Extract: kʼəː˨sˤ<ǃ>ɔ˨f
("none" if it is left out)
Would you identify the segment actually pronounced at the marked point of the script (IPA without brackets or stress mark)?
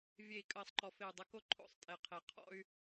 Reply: ǃ